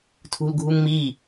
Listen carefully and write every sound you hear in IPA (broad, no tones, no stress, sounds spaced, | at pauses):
tʰ ṳ l ɡʱ u ŋ m i